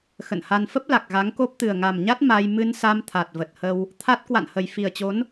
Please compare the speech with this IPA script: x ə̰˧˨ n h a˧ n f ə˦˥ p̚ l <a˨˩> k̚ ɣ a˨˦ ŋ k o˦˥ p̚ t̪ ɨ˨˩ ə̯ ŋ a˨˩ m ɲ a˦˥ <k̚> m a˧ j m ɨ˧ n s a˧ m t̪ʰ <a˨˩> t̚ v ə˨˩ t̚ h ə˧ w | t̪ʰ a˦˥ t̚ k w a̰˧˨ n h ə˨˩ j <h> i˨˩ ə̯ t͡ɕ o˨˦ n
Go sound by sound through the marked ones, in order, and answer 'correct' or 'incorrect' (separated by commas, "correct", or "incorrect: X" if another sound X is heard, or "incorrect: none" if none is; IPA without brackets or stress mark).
correct, incorrect: t̚, correct, incorrect: f